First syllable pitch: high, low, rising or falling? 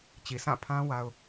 low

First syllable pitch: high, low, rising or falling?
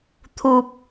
low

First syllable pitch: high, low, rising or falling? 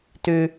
low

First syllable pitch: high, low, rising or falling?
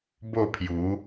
falling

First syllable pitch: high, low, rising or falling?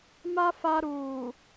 high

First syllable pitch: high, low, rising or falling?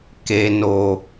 low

